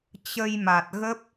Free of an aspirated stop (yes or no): yes